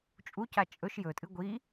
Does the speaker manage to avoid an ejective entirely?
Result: no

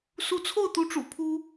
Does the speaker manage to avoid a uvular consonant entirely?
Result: yes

